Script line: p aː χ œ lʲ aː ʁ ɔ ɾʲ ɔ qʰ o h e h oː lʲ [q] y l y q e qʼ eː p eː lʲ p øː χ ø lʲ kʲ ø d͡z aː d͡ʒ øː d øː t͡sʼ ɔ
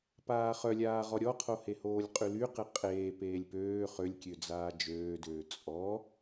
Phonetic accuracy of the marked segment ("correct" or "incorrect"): incorrect